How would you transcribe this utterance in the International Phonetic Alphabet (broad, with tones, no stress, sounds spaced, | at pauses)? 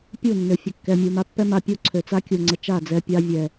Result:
pʲ u˦˨ nː ø˨ fʲ ə˨ kː ɛ˨ mʲ u˨ m a˧ pː ɛ˦ m a˧ pʲ u˦ ǀʰ ø˨ t͡s a˦ kʲ u˨ ŋ͡ǀ ə˨ t͡ʃ a˦˨ d͡z ɛ˧ pʲ a˧ vʲ ɛ˨